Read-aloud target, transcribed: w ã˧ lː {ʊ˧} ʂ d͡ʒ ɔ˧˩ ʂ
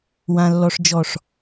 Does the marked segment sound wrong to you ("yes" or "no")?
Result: yes